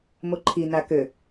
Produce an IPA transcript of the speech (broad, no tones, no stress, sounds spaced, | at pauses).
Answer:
m o ǃʰ i n a k ø